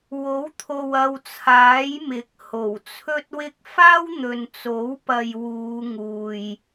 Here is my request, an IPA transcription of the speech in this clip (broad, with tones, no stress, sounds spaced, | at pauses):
w o˨˥ w t̪ʰ o˨ w ɐ˨ w t͡sʰ aː˨˥ j m ɪ˨˥ k̚ h o˨˩ w t͡sʰ ɵ˥ t̚ w ɪ˥ k̚ f aː˥ w n̪ ɵ˨ n t͡s o˨˥ w p ɐ˨ j w uː˨˧ ŋ uː˨ j